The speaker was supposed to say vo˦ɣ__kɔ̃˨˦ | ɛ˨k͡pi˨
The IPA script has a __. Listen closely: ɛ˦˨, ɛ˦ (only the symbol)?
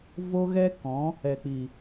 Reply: ɛ˦